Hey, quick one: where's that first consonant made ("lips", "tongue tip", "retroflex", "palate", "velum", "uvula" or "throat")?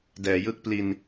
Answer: tongue tip